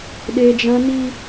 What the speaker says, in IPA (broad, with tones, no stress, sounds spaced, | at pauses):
ɗ e˦ d͡ʒ ã˦ n i˦